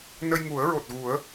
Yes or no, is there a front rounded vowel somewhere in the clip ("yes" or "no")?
no